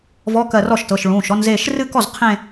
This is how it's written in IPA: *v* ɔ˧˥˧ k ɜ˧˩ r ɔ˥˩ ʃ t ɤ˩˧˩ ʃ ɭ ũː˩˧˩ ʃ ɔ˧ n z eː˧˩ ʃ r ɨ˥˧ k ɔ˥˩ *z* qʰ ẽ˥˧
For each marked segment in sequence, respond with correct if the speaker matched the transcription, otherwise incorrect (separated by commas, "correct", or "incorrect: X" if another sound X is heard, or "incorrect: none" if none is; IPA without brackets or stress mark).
correct, correct